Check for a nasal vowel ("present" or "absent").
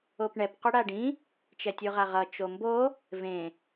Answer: present